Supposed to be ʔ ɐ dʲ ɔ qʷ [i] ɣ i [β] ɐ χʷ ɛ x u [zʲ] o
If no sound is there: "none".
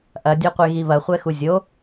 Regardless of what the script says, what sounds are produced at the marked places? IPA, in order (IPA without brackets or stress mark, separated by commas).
e, β, zʲ